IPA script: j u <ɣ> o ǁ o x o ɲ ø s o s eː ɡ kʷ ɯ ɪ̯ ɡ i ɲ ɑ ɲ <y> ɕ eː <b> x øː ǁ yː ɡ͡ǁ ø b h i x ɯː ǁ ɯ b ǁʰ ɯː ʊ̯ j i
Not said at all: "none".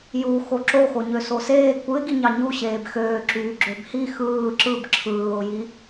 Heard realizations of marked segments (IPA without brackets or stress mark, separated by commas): x, u, b